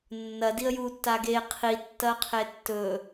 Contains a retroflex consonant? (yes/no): no